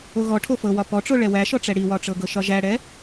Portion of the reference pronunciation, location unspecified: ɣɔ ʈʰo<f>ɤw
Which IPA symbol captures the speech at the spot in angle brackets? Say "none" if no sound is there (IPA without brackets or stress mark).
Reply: f